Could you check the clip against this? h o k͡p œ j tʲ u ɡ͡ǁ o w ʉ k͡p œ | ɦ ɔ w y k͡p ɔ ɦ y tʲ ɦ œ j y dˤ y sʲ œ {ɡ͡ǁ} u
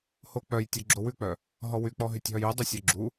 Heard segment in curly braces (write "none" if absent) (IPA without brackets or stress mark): ɡ͡ǁ